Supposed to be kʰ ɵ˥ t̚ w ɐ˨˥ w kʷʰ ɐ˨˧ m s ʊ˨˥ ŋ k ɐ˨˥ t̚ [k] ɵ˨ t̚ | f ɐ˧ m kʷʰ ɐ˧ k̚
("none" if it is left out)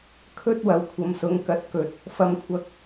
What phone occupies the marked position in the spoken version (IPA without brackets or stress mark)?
k